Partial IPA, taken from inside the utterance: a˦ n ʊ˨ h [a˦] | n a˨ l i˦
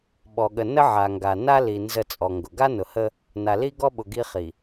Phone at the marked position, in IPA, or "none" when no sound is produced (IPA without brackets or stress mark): ə˦